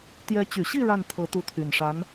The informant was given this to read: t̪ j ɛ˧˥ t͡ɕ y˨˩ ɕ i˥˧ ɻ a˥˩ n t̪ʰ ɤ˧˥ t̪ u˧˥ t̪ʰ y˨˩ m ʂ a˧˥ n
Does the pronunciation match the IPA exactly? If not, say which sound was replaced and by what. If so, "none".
m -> n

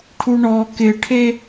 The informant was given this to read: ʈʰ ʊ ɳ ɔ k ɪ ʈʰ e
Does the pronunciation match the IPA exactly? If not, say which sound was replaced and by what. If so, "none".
ʊ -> u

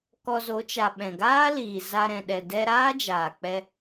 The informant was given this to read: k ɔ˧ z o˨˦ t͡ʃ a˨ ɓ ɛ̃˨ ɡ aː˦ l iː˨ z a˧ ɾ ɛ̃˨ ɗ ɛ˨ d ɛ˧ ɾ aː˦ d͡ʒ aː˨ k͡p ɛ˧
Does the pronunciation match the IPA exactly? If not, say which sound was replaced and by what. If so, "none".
none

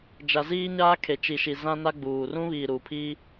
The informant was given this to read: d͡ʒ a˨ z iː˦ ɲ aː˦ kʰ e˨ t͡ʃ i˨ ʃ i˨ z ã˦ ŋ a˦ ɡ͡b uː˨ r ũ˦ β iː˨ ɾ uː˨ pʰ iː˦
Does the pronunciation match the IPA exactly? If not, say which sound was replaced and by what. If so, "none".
ŋ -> n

